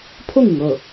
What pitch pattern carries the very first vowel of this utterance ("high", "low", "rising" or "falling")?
falling